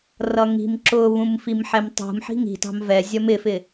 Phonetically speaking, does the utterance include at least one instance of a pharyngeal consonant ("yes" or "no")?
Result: yes